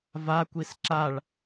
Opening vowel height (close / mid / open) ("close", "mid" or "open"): open